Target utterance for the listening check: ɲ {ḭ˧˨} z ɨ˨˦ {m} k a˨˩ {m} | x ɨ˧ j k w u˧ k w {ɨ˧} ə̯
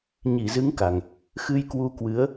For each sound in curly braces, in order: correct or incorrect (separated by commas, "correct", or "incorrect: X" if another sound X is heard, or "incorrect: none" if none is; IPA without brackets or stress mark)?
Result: incorrect: i˧˩, incorrect: ŋ, incorrect: ŋ, incorrect: ɨ˨˦